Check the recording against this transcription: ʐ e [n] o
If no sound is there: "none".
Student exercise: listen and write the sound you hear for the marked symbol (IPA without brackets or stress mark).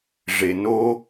n